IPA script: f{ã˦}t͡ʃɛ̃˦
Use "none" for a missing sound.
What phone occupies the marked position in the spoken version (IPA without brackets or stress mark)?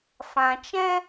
ã˨